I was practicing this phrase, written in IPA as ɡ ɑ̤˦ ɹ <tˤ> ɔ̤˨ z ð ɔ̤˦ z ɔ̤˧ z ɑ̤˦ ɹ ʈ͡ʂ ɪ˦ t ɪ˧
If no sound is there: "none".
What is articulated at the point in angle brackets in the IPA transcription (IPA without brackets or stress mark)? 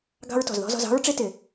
t